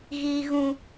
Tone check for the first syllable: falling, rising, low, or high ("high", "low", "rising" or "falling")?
low